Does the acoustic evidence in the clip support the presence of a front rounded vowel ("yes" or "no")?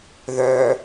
yes